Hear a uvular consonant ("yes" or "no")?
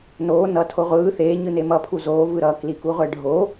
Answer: yes